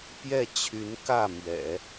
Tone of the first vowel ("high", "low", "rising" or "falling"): falling